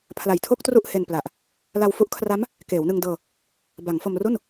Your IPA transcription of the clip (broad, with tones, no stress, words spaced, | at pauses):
pʰla˨˩jtʰo˥˩k̚ tru˥˩ʔhe˧npla˨˩ʔ | la˧wfu˦˥ʔkʰra˦˥m | keː˩˦wnɯ˧ŋdɤː˧ | ba˩˦ŋ fo˧mru˥˩n